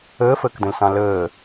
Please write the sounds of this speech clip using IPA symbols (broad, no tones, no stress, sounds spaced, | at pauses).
əː f əː k d ə̃ l s ɑ̃ l əː